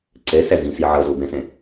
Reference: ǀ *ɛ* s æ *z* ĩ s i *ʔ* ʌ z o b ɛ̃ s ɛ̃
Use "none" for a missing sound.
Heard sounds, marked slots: ɛ, z, ʕ

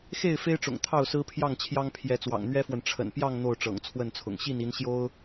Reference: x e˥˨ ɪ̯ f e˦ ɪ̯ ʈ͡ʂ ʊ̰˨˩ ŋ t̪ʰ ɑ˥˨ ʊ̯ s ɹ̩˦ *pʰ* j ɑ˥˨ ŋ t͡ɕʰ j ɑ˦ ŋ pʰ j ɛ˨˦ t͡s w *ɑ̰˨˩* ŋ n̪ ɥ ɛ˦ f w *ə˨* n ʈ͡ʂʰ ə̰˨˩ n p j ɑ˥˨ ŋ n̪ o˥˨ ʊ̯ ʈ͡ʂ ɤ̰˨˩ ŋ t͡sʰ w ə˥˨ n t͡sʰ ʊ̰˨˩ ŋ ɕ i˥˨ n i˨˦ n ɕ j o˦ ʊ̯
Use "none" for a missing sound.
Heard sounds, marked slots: pʰ, ɑ̰˨˩, ə˨

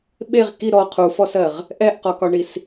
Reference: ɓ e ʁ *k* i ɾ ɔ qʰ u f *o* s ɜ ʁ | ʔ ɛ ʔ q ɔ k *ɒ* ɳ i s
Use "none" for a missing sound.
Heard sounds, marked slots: k, ɔ, ɒ

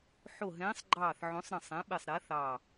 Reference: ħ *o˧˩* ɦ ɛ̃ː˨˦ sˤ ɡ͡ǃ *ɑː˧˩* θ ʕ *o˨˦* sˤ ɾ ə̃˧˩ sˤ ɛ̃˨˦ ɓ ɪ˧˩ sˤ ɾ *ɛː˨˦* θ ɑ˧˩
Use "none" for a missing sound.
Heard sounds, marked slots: o˧˩, ɑː˧˩, õ˨˦, ɛː˨˦

